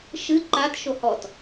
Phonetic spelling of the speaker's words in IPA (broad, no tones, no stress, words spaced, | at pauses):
ʃɨ ǃat ʃohɔt